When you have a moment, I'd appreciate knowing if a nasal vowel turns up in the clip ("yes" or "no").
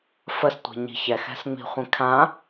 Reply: yes